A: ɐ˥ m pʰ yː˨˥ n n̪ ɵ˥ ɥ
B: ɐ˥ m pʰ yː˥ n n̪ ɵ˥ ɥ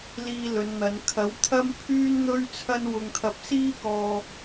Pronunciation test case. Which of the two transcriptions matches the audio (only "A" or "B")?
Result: B